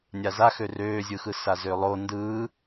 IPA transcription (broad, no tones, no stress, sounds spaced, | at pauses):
nʲ a z a x ø r øː zʲ ɯ x ɯ s a z ø lˠ o n d ɯː